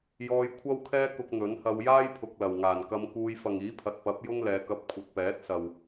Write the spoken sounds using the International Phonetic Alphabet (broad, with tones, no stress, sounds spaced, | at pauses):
j ɔː˧ j kʷʰ ɐ˥ w kʰ ɛː˥ k ʊ˧ k̚ n̪ ɵ˨˥ n h ɐ˧ w j aː˥ j pʰ ʊ˨ k̚ l ɐ˨˩ w ŋ aː˨˩ n k ɐ˧ m k uː˧ j f ɐ˨ ŋ iː˨˥ pʰ ɐ˨ t̚ p ɐ˨˥ p̚ j ʊ˥ ŋ l ɛː˧ k ɐ˥ p̚ kʷʰ ɐ˨˥ t̚ p ɛː˨˥ t̚ s ɐ˨ w